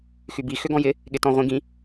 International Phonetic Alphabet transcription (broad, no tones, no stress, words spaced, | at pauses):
xybi xʏɡɔ̃jɪ | ɠɪtɔ̃ʁʷĩɡĩ